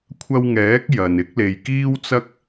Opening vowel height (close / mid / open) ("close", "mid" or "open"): open